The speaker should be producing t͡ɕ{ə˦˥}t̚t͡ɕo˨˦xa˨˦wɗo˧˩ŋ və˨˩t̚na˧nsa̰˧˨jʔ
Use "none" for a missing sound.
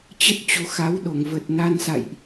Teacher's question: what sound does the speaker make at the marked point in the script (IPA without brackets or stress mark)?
ə˦˥